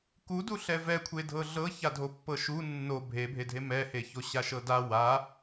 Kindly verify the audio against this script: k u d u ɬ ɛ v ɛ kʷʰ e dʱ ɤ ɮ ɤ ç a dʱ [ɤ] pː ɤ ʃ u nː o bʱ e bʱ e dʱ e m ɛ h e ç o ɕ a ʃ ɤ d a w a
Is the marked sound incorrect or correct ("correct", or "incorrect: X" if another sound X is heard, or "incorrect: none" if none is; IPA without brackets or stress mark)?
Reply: incorrect: o